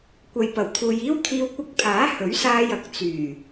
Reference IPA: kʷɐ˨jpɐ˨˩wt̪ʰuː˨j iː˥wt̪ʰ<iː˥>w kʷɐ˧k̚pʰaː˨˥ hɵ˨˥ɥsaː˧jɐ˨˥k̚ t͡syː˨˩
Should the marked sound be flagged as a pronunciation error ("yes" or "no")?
yes